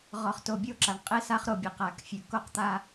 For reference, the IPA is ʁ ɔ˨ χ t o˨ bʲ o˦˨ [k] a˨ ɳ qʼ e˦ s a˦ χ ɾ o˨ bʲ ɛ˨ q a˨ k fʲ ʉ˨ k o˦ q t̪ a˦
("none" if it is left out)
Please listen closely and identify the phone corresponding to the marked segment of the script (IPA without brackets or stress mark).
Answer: ǁ